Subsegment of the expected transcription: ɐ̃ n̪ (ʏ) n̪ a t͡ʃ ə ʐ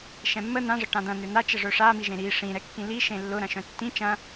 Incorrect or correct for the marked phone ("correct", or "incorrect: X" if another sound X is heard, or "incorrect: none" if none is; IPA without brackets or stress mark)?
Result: correct